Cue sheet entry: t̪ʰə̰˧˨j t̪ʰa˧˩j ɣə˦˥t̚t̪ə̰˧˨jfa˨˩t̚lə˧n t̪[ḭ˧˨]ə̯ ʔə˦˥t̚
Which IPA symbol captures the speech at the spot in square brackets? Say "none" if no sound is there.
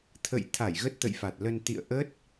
ḭ˧˨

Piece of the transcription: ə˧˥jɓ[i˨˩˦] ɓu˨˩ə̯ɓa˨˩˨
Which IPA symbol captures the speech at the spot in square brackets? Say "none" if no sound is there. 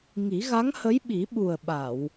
i˨˩˦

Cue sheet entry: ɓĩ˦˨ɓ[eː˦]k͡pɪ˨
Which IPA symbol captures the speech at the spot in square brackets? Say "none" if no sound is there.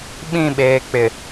eː˨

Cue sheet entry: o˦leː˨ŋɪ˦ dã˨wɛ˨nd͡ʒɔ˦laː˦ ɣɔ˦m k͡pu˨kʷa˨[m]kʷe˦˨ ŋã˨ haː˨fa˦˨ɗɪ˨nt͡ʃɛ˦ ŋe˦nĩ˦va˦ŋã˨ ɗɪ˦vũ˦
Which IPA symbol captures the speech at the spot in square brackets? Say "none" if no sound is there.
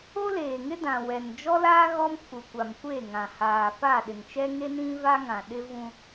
m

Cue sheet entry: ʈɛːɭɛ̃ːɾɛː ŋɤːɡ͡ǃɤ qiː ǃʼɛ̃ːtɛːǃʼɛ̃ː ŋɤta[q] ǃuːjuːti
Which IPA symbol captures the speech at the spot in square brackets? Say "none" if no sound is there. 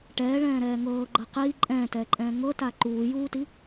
none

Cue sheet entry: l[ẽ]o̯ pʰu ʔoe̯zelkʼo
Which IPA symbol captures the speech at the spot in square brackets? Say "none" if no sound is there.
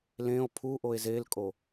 ẽ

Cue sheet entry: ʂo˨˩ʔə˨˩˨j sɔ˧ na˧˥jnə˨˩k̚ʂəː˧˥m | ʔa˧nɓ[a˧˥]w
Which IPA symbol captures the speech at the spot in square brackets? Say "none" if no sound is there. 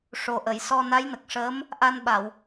a˨˩˨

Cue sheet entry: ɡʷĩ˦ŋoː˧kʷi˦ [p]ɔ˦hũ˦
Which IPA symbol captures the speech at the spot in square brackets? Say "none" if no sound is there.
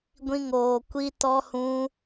t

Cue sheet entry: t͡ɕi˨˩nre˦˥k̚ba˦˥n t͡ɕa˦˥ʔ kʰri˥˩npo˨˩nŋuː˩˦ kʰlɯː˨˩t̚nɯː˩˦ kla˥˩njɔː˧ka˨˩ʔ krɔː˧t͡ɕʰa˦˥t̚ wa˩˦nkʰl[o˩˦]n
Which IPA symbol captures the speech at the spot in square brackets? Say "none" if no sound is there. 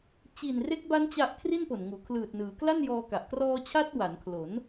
o˩˦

